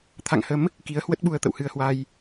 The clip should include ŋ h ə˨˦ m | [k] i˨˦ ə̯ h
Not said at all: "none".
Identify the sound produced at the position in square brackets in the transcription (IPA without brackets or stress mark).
k